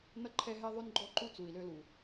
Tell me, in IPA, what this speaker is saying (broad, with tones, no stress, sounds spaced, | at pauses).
n ʌ˦ ǃʰ ɛ˦ ɦ ɛ˦ ðˤ ø˦ n ɡ͡ǃ ɔ˦ ǃ u˦ t͡s u˨ i̯ l ø˦ l u˨